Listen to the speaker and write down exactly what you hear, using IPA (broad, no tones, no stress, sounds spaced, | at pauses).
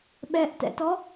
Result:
ɓ ɛ ʔ t ɛ̰ t ɔ